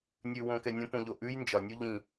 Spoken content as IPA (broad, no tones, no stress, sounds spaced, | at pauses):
nʲ ʉ w õ k ɛ nʲ õ p õ ʎ o ʔ ʉ j n d͡ʒ ɒ nʲ u ʎ ĩ